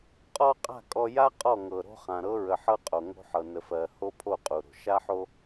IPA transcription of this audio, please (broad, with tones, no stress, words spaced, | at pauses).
qʼɔ˦qʼa̤˦˨ kʼɔ˨ja˦ qʼɔ˦˨ŋɤ˨ɾo̤˦χã˨ ɾɤ˦ɹə˨ħɤ˦qʼo˨ ŋo̤˦ħɤ˨nə˨fɜ˨ ho˦pʰo˦˨qʼu˨ɾo̤˨ ʃa˦ħo˦